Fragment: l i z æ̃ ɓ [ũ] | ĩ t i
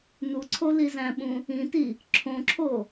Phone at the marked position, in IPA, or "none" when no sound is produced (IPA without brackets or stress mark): ũ